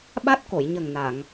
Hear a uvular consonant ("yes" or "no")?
no